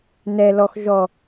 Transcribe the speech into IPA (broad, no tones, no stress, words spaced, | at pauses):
nɛ lɔx ʒɔ